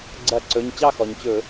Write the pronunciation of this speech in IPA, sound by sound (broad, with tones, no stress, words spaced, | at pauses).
ɡ͡ǀɐ˧˩˧ǀɵ˩˧˩ɲ t͡ɕɑ˥˧xɔ˩ɲt͡ɕɵ˧˩˧